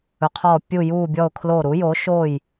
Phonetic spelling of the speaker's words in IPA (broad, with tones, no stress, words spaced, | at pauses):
ɵ˩˥qʰɔː˧˩ pʲu˧˩juː˧˩bʲɔ˧˩ʊ̯ kʰloː˧˩ɾu˩˥joː˩˥ ʃoː˧˩j